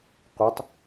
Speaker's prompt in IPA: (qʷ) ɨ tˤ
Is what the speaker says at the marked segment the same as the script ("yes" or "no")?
yes